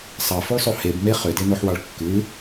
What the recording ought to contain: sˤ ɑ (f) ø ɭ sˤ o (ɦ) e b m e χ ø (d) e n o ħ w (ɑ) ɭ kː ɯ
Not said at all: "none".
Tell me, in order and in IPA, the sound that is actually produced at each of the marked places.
f, h, d, ɑ

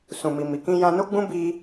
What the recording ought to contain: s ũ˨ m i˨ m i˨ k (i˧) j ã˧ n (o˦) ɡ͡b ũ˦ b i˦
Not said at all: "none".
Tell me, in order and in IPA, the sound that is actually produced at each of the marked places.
ĩ˧, o˦

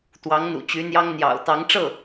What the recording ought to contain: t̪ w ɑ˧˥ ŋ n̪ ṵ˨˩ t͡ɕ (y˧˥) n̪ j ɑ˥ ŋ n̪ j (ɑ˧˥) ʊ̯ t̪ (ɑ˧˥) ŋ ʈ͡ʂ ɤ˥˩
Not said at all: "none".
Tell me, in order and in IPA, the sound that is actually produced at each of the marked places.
y˧˥, ɑ̰˨˩, ɑ˧˥

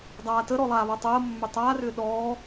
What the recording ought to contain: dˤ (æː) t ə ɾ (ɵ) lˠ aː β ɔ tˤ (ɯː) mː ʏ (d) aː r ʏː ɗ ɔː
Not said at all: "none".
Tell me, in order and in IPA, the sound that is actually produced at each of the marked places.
aː, ɔ, əː, tˤ

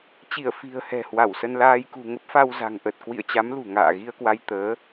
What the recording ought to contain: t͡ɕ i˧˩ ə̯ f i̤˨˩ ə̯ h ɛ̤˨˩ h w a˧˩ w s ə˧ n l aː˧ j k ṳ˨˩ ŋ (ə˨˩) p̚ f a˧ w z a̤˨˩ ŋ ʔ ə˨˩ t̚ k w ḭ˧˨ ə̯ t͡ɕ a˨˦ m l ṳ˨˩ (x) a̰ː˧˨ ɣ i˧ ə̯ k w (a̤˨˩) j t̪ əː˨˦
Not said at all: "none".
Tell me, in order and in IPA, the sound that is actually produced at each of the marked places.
ə˦˥, ŋ, a˧

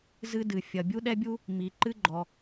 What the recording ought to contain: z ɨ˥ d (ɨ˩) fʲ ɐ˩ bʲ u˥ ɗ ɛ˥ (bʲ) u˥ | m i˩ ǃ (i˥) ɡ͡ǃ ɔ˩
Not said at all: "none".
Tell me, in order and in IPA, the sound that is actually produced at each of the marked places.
ɨ˩, bʲ, ɨ˥

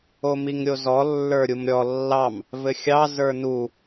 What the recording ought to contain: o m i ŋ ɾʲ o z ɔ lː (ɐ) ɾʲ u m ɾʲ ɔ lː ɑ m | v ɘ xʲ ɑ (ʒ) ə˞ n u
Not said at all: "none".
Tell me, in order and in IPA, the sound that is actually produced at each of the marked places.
ə˞, z

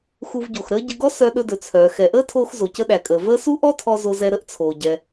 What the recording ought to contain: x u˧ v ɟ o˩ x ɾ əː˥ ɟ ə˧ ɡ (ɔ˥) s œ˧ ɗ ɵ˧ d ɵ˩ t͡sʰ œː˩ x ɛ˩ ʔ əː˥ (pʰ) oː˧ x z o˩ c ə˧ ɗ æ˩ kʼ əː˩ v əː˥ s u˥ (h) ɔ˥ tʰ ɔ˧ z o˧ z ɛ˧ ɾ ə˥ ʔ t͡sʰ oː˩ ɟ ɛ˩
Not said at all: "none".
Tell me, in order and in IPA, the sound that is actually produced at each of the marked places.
ɔ˥, tʰ, ʔ

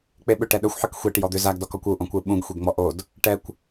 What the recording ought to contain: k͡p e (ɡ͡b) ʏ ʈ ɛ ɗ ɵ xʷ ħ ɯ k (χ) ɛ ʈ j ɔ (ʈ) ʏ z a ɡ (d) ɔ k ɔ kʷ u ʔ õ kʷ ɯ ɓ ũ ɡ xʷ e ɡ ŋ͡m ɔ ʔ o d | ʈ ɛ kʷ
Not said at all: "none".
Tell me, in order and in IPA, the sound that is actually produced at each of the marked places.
ɓ, xʷ, d̪, d

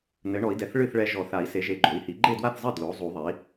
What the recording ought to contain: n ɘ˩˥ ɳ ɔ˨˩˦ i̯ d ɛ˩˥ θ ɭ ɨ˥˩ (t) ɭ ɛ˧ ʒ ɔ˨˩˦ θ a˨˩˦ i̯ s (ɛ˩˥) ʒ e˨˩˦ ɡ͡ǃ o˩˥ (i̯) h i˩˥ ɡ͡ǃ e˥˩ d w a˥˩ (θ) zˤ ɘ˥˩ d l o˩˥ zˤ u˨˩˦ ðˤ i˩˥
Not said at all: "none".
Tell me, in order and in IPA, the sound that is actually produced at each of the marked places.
θ, e˩˥, i̯, θ

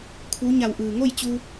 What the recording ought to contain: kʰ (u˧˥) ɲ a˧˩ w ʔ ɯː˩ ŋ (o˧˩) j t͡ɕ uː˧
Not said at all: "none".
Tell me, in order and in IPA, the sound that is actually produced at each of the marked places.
u˧˥, o˥˨

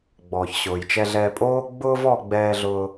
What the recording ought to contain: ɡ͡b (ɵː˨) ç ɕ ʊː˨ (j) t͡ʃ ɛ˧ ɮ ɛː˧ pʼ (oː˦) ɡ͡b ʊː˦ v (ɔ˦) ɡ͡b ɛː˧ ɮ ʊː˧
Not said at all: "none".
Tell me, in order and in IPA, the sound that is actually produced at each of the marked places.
ɔː˨, j, oː˦, ɔ˧

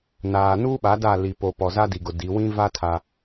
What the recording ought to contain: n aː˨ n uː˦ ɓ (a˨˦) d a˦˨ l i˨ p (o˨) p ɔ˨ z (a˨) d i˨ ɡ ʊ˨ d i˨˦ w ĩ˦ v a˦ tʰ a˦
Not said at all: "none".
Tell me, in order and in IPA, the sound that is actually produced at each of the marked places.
a˨˦, o˨, a˦

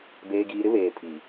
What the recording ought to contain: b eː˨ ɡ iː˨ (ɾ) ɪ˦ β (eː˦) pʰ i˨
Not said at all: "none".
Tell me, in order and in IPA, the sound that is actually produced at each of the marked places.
ɾ, eː˨

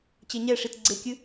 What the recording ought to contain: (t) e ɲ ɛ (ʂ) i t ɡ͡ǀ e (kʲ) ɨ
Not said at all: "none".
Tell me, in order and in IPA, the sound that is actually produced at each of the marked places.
t͡ɕ, ʂ, kʲ

